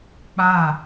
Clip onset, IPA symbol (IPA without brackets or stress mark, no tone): k͡p